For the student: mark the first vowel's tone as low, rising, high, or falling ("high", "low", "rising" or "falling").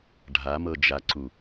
rising